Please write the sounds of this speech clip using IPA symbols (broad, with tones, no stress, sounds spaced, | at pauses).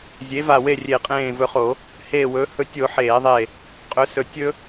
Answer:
zʲ e˩˥ v a˧˩ w e˥˩ rʲ e˧˩˧ qʼ ẽː˧˩ v ɵ˧˩ χ o˧˩˧ | h eː˧˩ w ɵː˩˥ h ɵ˧˩ tʲ o˧˩˧ ħ eː˧˩˧ ðˤ e˧˩ | qʼ ɵ˩˥ s ɵ˧˩ tʲ ɵ˥